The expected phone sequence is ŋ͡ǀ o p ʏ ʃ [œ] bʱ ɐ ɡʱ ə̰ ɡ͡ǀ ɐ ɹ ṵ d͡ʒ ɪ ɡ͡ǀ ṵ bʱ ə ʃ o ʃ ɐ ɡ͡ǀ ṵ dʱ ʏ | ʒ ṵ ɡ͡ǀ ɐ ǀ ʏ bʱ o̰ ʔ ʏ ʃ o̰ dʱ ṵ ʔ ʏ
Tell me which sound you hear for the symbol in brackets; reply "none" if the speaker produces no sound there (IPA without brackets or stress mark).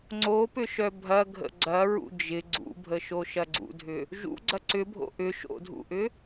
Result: œ